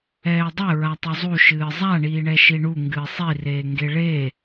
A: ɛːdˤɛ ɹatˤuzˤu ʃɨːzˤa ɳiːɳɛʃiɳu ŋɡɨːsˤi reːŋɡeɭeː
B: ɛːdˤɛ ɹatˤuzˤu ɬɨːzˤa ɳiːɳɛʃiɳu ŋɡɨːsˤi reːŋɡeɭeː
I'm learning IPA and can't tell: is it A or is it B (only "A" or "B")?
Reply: A